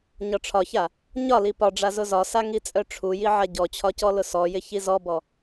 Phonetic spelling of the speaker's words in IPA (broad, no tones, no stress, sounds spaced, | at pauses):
ɲ ɒ ʈ͡ʂʰ ɒ ç a | ɲ ɒ l i p ɒ ɖ͡ʐ a z ʊ z ɒ s a ŋ i t͡sʼ œ ʈ͡ʂʰ u j i ʕ a ɟ ɔ t͡ɕʰ ɒ c ɔ l ʊ s ɔ j ɪ ç i z ɔ b ɔ